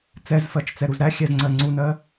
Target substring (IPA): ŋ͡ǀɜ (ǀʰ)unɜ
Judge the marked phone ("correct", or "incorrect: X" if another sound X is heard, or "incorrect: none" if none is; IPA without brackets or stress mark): incorrect: ŋ͡ǀ